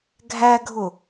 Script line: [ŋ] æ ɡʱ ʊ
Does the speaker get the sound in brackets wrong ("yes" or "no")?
yes